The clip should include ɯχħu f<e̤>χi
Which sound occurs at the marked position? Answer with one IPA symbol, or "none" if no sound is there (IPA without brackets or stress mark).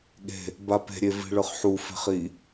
e̤